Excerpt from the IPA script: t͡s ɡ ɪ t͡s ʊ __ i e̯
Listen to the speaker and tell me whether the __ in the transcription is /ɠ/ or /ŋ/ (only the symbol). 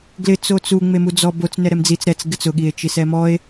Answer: ɠ